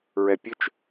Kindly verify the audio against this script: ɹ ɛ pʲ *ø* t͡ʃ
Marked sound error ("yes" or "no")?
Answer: no